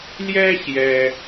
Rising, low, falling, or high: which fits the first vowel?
high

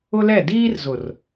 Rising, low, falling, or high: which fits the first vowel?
high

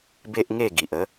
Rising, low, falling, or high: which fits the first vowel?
high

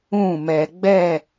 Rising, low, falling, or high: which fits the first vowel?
falling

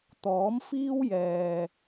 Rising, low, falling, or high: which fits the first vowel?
rising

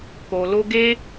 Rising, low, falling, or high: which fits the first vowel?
low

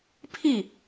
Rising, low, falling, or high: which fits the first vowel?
falling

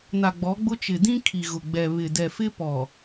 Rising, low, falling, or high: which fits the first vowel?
low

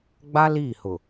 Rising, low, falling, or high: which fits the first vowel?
high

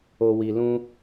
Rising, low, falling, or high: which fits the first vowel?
low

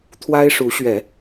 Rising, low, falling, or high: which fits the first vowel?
high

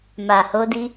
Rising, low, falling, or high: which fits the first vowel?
low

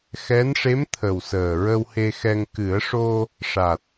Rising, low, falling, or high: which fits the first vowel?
rising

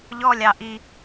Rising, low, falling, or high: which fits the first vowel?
high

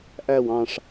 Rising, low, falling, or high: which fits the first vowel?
falling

